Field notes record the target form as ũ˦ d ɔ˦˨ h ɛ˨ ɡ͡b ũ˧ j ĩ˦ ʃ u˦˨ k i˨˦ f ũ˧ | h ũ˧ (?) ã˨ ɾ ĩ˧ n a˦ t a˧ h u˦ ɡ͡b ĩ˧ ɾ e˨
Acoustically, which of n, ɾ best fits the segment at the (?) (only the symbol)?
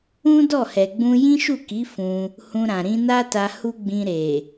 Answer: ɾ